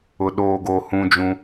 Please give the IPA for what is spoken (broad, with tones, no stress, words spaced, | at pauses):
ʊ˨ ɗoː˨ɡoː˨ hũ˦d͡ʒũ˦